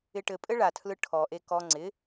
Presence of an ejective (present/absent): present